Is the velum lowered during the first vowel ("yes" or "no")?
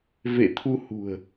no